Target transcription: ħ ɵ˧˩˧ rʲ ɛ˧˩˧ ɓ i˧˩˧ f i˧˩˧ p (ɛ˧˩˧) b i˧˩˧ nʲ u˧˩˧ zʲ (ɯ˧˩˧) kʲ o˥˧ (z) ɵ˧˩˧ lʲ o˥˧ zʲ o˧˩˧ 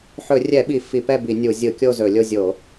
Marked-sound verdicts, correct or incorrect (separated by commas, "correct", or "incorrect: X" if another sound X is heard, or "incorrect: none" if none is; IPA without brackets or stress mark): incorrect: ɛ˥˧, correct, correct